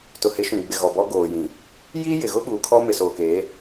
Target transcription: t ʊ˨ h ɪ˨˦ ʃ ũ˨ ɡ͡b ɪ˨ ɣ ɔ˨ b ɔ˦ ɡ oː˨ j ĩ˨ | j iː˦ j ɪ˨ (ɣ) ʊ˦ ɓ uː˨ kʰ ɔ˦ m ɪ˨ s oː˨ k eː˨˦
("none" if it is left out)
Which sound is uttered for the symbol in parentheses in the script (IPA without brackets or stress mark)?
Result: ɣ